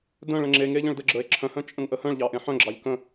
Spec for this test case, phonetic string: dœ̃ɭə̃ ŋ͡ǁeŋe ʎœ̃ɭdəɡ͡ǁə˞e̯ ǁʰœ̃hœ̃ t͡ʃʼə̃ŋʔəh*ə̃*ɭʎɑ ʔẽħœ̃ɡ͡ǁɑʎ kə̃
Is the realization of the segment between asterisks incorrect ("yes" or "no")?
yes